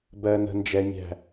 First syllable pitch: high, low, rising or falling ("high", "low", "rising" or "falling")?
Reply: low